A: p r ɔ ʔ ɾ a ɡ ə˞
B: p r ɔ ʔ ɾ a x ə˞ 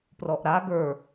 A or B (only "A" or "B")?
A